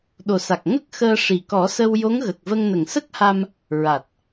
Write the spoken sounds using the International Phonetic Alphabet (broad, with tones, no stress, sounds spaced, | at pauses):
ɗ o˨˩ s a˨˩ k̚ ŋ ə˦˥ k̚ x əː˧ ʂ i˨˩ k ɔ˨˩˦ s ə˧ w j o˧˥ ŋ ɣ ə˨˩ k̚ v ə˧ ŋ n ə˨˩ ŋ s ə˦˥ k̚ h a˧ m | ɹ a˨˩ t̚